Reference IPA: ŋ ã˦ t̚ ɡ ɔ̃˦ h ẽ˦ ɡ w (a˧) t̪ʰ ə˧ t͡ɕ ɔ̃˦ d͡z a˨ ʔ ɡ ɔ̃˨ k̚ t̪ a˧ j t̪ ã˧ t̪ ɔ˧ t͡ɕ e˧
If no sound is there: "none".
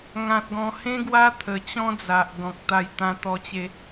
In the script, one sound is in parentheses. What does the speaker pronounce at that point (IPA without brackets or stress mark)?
a˦